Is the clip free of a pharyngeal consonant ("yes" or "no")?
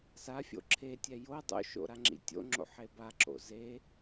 no